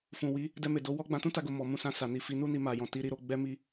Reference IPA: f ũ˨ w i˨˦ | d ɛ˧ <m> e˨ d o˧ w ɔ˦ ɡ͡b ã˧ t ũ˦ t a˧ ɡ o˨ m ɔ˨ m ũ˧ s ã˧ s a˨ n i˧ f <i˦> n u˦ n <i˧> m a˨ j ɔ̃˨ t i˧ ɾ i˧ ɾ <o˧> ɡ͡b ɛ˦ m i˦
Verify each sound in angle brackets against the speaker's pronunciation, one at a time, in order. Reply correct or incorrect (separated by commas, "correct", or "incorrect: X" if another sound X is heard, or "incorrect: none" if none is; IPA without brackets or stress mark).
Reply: correct, incorrect: i˧, correct, correct